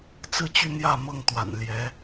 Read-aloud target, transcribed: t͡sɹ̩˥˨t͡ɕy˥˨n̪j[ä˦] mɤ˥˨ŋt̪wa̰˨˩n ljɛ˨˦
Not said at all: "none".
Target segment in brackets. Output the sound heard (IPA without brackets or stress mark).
ä˥˨